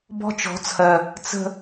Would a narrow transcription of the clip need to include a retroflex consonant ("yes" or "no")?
no